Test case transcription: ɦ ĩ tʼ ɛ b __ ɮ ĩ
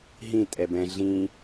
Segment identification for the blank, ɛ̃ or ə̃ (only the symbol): ɛ̃